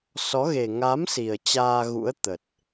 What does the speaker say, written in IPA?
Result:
sɔ˨˦ɣe˨˩ ŋa˨˦m si˨˩ə̯t͡ɕaː˧ɣṵ˧˥ə̯ t̪ə˨˩t̚

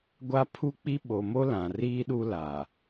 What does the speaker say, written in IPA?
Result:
ɡʷa˦pʰu˦k͡pi˦ ɓo˨mo˦ lã˨riː˦ɗu˦la˨

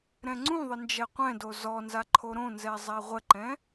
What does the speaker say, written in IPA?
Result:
ɾɛ̃ŋ͡ǀũðˤə nd͡ʒɛqʷɛ̃do zɔnza ǃʰoɾõnzɛ zˤɛʁʷəǃɛ̃

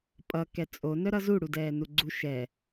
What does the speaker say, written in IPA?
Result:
pʼʌ kɛt͡sʼo nœɾʌzu ɽudɛːnuɡ͡ǀu ʃɛ

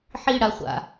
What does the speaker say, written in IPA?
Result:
ħiɽa χʷa̰

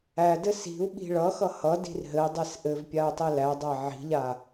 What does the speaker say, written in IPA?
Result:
ædɘ si̤u̯ ɓi̤ɭʌxʌ hʌ di̤rɦɘi̯dˤes ʔɘvpʲau̯ tˤilædˤæ ʕi̤ʎa

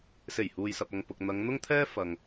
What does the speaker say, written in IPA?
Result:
se˨˩j huː˧jsɐ˧p̚ɐ˧ŋpʊ˧k̚ n̪ɐ˨˧ŋn̪ʊ˥ŋt̪ʰɛː˥ fɐ˨ŋ

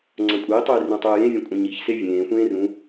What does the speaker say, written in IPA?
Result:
ŋ͡ǀɐ̃kʷʼei̯tˤɵi̯ rũtˤɵːjẽvʲɐ̃ kʷʼɐ̃ɲiçse vʲẽːxʷẽː rũ

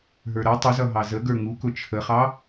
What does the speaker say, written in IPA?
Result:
ɦə˞ɾʌ tˤʊzʌɦɑ zəɡə˞ ŋukʊ t͡ʃʰəχɑ

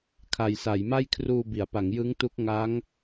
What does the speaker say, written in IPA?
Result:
kʰa˨˩jsa˩˦jma˥˩j kʰruː˧bi˩˦a̯pa˩˦ŋ jɯ˦˥ŋtu˦˥k̚ŋa˦˥ŋ

